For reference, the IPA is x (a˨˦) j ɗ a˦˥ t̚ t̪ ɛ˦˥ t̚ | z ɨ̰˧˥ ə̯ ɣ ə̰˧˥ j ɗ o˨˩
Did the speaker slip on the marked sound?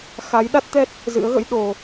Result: no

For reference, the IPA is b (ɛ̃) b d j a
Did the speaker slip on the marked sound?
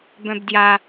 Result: yes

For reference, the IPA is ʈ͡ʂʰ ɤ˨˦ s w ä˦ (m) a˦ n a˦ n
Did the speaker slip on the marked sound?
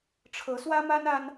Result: no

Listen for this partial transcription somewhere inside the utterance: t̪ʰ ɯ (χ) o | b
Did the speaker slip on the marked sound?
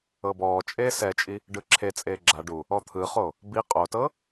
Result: no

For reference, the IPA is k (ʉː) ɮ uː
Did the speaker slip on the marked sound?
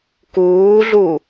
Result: yes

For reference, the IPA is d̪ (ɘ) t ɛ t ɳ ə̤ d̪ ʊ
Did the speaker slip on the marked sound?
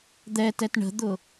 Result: yes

